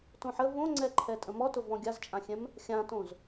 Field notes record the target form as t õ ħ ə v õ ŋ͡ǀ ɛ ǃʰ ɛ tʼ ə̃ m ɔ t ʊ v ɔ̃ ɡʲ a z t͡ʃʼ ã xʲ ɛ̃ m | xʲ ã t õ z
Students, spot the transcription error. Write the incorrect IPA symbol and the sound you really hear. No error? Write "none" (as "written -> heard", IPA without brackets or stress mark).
none